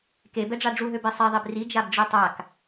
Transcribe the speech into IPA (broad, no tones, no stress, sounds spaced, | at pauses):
k e b ɛ ɖ͡ʐ a ɖ͡ʐ u ɦ ø b e sˤ ɛ ðˤ e b r i d͡ʒ a b ɖ͡ʐ i tˤ a k